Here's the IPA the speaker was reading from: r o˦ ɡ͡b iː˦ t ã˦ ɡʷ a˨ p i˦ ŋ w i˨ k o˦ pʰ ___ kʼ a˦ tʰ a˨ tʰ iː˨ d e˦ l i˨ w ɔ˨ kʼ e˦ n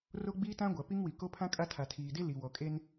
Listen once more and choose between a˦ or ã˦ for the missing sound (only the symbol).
ã˦